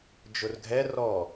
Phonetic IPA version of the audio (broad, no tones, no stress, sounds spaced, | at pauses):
d͡ʒ ʊ r ɡʱ ɛ r ɔ